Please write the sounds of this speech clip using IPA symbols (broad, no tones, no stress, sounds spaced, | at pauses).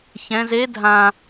ç ɛ̃ z e dʱ ã